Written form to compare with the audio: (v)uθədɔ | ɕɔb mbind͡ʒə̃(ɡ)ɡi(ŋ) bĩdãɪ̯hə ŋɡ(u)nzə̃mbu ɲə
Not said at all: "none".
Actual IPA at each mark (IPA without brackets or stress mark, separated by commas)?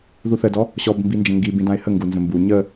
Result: ð, ŋ, none, u